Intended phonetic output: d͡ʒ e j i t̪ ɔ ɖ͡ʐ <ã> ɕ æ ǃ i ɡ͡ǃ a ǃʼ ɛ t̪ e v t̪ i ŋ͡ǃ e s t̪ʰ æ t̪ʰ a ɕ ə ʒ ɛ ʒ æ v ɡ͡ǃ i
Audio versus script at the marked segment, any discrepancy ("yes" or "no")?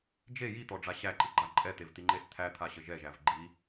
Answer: yes